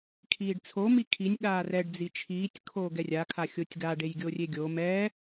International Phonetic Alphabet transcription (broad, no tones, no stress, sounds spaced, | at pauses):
kʰ iː ɖ t͡sʰ o m i kʰ i nʲ ɠ aː r ɛ ɖ d͡z i t͡ʃʰ iː tʲ kʰ oː ɡ ɛ rʲ a kʰ a xʲ o tʲ ɡ a ɖ e j ɡʲ o rʲ e ɡʲ o m ɛː